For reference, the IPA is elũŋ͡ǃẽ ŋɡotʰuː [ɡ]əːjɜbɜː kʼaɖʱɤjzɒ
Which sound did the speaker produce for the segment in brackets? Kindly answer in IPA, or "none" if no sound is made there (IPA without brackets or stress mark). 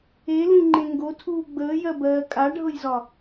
ɡ͡b